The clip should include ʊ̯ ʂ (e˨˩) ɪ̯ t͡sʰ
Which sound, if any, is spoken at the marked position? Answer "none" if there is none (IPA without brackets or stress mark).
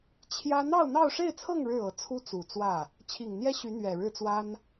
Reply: e˥˧